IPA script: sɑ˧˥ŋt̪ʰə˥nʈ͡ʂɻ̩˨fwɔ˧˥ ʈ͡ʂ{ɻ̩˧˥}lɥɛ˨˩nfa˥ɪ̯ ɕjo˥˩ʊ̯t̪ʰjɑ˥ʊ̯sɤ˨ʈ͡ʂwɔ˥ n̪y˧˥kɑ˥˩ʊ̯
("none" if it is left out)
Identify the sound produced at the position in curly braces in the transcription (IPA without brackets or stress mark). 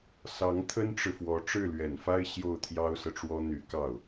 ɻ̩˥˩